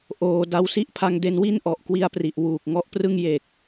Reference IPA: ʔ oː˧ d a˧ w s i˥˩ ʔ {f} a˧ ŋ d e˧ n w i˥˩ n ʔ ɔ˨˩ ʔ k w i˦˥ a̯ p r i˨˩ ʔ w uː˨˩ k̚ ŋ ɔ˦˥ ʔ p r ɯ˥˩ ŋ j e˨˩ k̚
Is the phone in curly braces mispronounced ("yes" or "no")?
yes